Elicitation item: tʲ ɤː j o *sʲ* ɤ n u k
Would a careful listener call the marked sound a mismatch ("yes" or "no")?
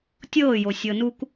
no